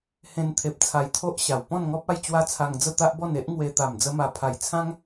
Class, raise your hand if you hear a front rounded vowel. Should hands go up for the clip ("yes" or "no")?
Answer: no